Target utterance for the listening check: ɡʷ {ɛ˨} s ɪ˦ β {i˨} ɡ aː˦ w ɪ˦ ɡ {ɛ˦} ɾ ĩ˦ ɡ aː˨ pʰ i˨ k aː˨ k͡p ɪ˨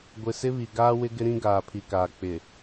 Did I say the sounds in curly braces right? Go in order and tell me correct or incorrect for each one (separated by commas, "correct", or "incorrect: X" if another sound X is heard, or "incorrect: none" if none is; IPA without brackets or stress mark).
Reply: incorrect: ɪ˨, correct, incorrect: ɪ˦